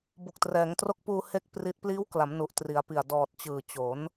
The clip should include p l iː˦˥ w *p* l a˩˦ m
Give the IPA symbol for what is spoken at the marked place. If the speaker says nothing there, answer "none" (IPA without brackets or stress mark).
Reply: k